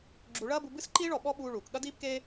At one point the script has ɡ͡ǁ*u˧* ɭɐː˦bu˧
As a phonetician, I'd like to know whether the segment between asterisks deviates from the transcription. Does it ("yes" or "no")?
no